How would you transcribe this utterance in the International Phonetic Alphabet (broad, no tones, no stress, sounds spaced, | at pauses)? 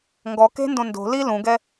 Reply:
ŋ ɡ ɔ k e̤ n d õ n d o̤ l i l ũ ɡ ɛ